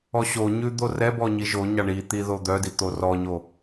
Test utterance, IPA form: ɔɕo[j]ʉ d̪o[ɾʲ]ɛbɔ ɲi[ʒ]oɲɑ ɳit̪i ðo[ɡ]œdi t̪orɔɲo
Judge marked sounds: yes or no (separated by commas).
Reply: no, no, yes, no